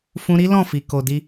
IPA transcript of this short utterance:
fũ˧ɾi˦ lɔ̃˦˨fi˨ ko˨di˧

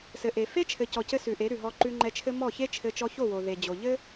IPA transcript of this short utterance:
sɘ˨ʔe˨ fe˦t͡ʃʰɘ˨ cɔ˨cɘ˧ sʉ˨ʔe˨˦ ɾʉ˨ɦɔ˧ ǃʉ˧ŋ͡ǃɛ˧t͡ʃʰɘ˦ mɔ˦˨çe˦t͡ʃʰɘ˧ t͡ʃɔ˧ço˦˨wo˨ ðe˨d͡ʑo˨ʎɘ˦

